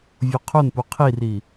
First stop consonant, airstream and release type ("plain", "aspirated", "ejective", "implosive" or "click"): aspirated